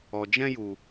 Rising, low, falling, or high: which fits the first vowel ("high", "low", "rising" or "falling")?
low